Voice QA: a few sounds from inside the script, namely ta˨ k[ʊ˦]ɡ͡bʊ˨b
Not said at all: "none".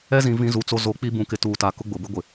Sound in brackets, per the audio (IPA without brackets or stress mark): ʊ˦